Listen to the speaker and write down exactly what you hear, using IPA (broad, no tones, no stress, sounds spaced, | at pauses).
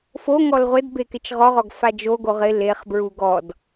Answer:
f o ŋ ɔ l ʁʷ ɪ d b e k ɪ t͡ʃ ʁ ɔ ʁ ɔ ɡ f a d͡ʒ o ɡ o ʁ ɪ l e χ b ɹ u ɡ ɔ d